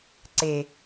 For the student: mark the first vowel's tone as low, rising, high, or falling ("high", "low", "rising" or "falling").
low